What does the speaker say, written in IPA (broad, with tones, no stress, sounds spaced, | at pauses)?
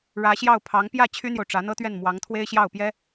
ɻ ä˧˥ ɕ j ɑ˥˩ ʊ̯ pʰ ɑ˧˥ ŋ p j ä˥˩ t͡ɕʰ y˥ n̪ j o˨ ʊ̯ ʈ͡ʂ ä˧˥ n̪ ɤ˥ t̪ ɥ ɛ˥˩ n m w ɑ˧˥ ŋ t̪ʰ w e˥ ɪ̯ ɕ j ɑ˥˩ ʊ̯ p j ɛ˥